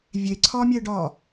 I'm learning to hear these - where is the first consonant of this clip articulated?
lips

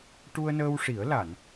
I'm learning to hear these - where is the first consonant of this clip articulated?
retroflex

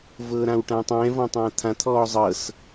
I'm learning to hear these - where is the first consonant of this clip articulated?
lips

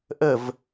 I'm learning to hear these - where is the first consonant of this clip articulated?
throat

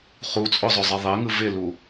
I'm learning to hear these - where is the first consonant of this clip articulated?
uvula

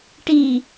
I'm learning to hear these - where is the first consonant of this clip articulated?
retroflex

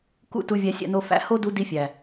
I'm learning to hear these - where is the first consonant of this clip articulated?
velum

